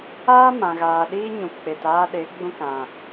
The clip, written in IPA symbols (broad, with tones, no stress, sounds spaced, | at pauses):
aː˦ m ã˨ ɣ aː˨ ɗ iː˦ ɲ ũ˨ p k͡p e˨ t aː˧ ɗ e˨˦ ɡ͡b ũ˧ k ã˨